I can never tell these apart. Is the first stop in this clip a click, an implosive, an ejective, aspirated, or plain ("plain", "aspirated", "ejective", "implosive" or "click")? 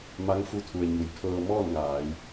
aspirated